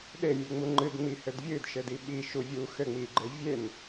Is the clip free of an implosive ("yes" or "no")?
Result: no